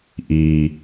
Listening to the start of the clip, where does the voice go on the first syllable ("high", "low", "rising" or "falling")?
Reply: low